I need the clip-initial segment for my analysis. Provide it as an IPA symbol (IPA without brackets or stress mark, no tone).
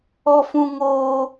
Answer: ɔ